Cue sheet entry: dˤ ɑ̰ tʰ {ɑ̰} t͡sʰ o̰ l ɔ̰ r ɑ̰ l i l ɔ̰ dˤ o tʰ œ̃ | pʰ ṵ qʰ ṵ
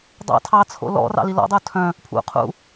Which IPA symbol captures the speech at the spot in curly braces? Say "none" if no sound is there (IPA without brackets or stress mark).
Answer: ɑ